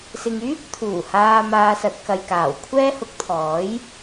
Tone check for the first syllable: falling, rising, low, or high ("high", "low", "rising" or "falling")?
low